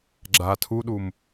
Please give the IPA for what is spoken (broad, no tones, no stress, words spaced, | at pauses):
ɡ͡ǁa tʰuɗum